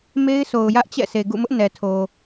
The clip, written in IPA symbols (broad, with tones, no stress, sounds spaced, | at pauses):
m e˦ ɪ̯ sʰ o˨ ʊ̯ j ä˦ ʔ t͡ɕ ɛ̰˦˨ sʰ e˨ ɡ ṵ˦˨ m ʊ˦ ʔ n ɛ˨ tʰ o˨